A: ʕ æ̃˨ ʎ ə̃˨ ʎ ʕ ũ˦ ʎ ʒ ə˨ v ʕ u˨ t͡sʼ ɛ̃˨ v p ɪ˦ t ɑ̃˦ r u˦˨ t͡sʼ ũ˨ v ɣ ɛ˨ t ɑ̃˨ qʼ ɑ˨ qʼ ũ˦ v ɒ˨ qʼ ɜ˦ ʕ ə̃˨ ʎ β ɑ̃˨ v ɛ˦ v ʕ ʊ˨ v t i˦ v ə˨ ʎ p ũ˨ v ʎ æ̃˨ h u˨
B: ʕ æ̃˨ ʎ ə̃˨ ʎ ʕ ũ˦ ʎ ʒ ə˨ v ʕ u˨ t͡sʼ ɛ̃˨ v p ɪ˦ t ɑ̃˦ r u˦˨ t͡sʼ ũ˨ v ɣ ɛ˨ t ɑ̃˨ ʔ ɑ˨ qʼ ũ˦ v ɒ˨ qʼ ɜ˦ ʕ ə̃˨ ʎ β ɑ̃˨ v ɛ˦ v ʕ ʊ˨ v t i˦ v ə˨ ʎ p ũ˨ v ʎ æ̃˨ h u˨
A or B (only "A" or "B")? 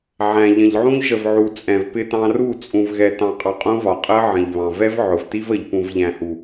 A